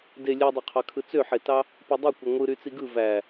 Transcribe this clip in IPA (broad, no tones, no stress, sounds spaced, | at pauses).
d e lʲ e dˤ o qʰ ɑ kʰ ɯ t͡s ø ħ e t ɑ | p u dˤ i kʷ ɯ ŋʷ ɯ ɾ y t͡s i ɡ ɯ v æ